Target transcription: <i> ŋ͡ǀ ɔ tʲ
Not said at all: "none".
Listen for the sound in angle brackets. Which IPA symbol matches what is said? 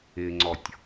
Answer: ɪ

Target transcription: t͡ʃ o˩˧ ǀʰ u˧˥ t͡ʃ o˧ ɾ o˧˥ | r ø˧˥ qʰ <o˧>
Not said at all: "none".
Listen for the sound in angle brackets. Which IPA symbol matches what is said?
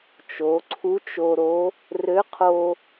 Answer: o˧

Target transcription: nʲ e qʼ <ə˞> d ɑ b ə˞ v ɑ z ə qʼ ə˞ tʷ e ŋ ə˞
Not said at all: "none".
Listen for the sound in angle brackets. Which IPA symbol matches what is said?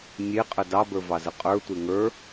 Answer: ə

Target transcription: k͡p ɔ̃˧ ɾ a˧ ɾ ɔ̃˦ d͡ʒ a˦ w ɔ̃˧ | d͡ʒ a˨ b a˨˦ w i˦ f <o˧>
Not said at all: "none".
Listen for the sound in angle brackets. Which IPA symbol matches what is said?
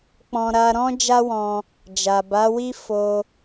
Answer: o˧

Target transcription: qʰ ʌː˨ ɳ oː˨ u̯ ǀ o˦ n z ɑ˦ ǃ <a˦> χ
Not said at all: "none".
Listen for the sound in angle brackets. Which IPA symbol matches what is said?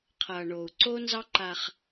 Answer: a˦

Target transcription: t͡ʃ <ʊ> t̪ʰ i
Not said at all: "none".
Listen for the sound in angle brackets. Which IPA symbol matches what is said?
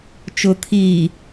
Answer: ʊ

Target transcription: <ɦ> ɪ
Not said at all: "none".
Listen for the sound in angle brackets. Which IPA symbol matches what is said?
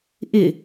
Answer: ʔ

